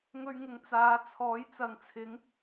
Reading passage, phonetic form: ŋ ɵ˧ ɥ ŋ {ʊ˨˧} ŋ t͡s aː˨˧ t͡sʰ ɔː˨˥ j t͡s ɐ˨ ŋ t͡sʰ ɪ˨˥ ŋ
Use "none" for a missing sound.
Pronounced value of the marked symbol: ʊ˨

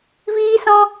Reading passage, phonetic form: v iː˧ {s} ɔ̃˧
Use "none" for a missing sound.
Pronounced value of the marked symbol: s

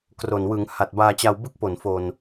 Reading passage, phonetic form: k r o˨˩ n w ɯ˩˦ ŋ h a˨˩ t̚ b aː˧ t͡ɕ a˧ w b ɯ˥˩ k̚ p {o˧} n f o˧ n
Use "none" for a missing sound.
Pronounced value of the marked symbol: o˨˩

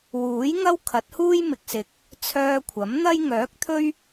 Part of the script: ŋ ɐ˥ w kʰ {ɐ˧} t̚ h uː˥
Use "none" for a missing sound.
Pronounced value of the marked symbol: ɐ˨˥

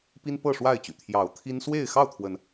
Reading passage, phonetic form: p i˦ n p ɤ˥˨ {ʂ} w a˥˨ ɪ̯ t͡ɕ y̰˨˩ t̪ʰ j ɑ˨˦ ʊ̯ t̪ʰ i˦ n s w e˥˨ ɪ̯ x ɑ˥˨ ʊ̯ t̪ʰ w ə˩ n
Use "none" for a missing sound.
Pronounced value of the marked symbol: ʂ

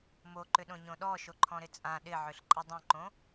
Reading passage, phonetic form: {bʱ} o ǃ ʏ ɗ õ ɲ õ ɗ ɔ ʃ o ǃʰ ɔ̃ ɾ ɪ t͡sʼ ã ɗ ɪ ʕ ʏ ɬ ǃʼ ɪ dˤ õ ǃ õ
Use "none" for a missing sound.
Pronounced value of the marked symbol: m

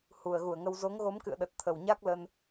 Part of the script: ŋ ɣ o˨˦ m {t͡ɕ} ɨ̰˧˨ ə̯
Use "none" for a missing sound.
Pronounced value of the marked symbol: k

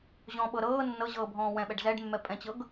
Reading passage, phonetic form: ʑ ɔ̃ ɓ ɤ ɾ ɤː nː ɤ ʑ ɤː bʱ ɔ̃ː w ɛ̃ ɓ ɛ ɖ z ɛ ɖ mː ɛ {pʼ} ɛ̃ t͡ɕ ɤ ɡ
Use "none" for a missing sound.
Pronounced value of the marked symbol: pʼ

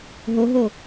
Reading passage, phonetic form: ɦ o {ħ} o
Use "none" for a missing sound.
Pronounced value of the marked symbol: ɦ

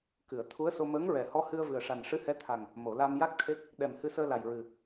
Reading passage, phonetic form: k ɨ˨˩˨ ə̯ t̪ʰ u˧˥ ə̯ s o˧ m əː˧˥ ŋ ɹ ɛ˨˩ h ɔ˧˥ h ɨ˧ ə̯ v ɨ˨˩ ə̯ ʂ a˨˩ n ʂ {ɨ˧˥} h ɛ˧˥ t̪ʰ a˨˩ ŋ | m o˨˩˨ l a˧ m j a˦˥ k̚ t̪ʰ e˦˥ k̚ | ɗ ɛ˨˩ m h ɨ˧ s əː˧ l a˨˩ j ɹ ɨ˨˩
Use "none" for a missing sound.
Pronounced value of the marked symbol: ɨ˧˥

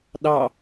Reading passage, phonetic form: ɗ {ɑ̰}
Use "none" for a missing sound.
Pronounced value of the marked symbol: ɑ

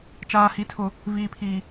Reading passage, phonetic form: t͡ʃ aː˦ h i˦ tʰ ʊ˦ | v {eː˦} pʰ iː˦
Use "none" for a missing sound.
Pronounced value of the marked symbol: iː˦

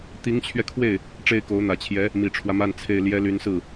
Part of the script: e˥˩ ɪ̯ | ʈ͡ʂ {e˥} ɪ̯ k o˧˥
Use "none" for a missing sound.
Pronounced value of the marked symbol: e˥˩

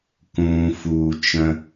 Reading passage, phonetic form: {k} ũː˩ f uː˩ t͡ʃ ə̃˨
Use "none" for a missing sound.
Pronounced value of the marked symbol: k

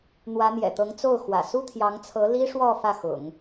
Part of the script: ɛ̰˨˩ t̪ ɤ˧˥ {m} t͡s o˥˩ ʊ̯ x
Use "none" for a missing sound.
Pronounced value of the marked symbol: ŋ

